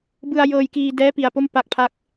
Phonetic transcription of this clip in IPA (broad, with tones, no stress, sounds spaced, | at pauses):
b ɯ˧ a̯ j ɤː˧ j k iː˧ d ɛː˦˥ p i˧ a̯ p o˥˩ m p a˥˩ k̚ pʰ a˥˩ k̚